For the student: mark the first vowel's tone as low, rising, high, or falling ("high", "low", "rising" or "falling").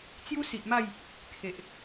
high